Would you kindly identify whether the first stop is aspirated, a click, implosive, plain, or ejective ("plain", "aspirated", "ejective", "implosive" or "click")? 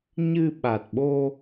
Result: implosive